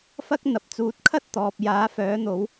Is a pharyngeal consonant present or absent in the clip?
absent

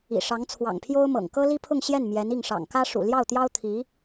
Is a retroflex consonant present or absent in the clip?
present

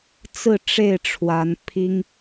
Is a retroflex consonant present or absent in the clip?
present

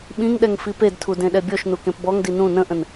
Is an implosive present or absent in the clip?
present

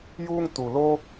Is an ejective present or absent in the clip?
absent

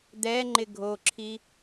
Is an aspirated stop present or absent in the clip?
present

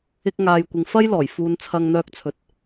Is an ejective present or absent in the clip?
absent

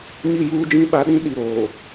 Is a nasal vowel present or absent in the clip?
present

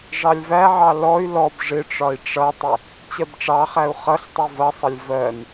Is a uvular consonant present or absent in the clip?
present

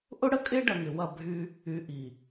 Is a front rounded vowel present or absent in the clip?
present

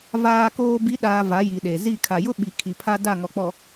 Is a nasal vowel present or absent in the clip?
absent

